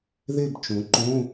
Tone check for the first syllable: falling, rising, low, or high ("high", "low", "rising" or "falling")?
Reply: falling